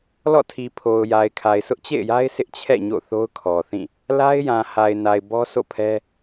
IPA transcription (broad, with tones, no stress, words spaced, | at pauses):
lɔ̰˦˨tʰi˨pʰo˨ʊ̯ ja˨ɪ̯kʰa˨ɪ̯ sʊ˦ʔt͡ɕḛ˦˨ɪ̯ja˦ɪ̯ sɪ˦ʔt͡ɕʰɛ̰˦˨ ɲo̰˦˨θo˦ʊ̯kʰɔ˨θĩ˦˨ | la˦ɪ̯jã˨ha˨ɪ̯ na˨ɪ̯bɔ˦ sʰo̰˦˨pʰɛ˦